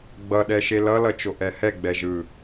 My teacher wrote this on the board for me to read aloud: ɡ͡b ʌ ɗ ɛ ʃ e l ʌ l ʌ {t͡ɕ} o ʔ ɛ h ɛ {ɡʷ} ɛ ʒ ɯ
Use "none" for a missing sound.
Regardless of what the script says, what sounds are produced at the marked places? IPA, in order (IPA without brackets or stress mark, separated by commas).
t͡ʃ, ɡ͡b